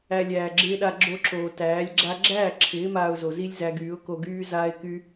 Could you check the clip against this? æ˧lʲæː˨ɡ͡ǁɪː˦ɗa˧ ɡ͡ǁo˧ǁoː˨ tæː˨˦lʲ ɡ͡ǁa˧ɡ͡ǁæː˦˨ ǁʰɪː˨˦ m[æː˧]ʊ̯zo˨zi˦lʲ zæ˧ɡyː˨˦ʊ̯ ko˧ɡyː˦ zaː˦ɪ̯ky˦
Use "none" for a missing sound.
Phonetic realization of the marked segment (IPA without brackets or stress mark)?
aː˧